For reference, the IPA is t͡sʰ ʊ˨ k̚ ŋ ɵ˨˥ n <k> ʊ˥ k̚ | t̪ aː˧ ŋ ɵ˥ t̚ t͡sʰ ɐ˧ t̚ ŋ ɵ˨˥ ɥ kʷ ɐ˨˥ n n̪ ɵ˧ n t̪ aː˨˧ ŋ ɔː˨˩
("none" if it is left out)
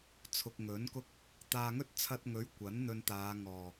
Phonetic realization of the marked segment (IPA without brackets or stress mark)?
k